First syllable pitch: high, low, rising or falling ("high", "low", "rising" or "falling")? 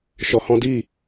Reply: low